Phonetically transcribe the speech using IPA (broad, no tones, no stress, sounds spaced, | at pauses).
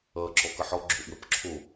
ʌ ǁ ɔ k ʌ ħ ɔ ɡ͡ǁ o ʔ w ə p ǁʰ o